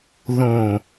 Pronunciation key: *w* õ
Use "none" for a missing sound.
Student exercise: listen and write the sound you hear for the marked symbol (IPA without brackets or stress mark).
ð